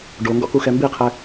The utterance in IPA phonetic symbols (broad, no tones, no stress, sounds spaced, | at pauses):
ɖ o ŋ ɡ ɔ̰ k u x ɛ m b i qʰ ɛ